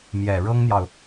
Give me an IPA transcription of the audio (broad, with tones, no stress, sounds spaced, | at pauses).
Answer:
m j ɛ˨˩ ɻ ɤ˥ ŋ n̪ j ɑ˨ ʊ̯